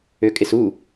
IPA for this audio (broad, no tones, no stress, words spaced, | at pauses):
økʼɪsu